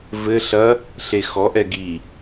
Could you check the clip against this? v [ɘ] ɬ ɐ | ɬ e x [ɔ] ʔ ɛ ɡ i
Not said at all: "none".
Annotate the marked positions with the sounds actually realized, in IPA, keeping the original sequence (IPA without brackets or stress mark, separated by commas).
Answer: ɘ, ɔ